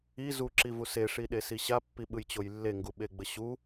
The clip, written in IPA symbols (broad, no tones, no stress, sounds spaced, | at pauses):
i z u ǁ i v u s e ʂ i ɗ e s i ɕ a pː i ɓ ɯ j t͡ɕ o j lː e ŋ ɡ u ɓ e ɡ͡b ə ɕ u